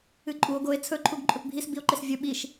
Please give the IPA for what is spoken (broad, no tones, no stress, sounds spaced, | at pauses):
ɨ ǃʼ u o̯ ɡ o e̯ t͡sʰ ɵ ǃʰ u ɡ ǃʼ ɵ p bʱ i s b i o̯ ǃ e s vʲ ɵ ɓ i ʃ